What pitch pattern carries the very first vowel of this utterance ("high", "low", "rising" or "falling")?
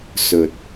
low